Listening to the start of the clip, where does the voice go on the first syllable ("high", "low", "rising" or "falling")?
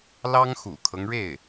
high